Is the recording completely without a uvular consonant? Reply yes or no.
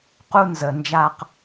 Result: no